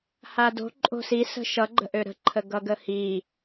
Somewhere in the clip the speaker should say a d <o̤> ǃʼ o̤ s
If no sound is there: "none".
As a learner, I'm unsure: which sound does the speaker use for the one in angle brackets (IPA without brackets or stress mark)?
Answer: o̤